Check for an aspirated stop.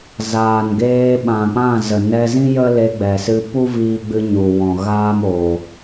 absent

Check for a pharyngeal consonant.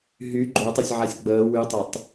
present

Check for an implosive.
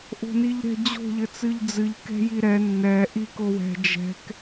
absent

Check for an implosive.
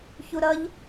absent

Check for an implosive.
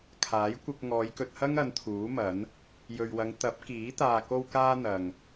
absent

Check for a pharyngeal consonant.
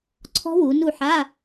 present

